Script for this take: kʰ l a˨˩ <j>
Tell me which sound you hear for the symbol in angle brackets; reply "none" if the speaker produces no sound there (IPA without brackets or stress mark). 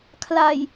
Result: j